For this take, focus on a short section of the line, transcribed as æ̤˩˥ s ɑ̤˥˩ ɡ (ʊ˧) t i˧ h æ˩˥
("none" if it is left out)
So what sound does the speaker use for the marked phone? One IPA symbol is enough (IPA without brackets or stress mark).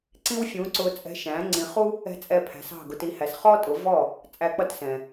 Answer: ʊ˧